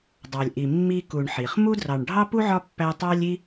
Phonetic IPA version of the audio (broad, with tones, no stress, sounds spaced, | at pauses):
dˤ ɑ˨ lʲ ʔ i˨ mː i˦ k u˨ ɳ ħ i˩ χ m u˥ d r ɑ˨ ɳ ɖʱ ɑ˥ p u˥ ʕ ɒ˦ pː æ˥ tˤ ɑ˦ lʲ i˦